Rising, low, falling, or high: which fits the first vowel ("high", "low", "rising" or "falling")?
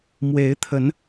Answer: rising